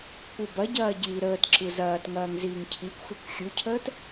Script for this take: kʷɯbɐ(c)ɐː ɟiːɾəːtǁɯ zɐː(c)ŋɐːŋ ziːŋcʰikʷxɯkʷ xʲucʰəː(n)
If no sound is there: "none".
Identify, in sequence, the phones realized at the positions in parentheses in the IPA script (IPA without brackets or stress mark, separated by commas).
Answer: ɟ, t, t